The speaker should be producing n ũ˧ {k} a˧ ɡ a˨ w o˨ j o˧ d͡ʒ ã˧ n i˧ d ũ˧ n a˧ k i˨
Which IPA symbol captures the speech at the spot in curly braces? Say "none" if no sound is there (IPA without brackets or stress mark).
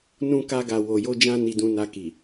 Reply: k